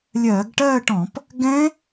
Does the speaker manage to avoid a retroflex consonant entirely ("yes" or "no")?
no